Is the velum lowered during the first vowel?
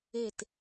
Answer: no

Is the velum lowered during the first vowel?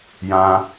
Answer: yes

